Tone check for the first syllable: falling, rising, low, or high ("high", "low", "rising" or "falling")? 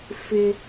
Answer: high